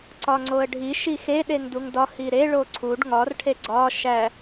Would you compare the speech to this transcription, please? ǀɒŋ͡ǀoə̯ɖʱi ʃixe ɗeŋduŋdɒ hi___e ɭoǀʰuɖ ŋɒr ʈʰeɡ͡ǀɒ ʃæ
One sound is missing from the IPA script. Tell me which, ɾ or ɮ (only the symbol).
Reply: ɾ